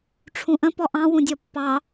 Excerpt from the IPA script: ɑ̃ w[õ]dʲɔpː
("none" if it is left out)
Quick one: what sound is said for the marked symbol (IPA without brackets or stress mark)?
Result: ũ